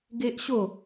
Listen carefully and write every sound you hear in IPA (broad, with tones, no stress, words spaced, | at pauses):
ɡe˦ʔɕo˥˧